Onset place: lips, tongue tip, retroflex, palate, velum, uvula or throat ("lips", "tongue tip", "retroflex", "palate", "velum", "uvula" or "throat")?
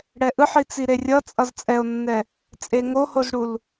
retroflex